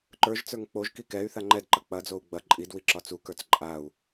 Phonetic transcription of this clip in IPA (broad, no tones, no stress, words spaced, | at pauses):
ǃə˞ʒt͡sə˞ŋ k͡poʒki kɛy̯ θaŋ͡ǃɛdǃɐ k͡pɐd͡zou̯ ɡ͡bɐ ǃʼidwi ǁɒt͡sukə˞t͡s ǃʼau̯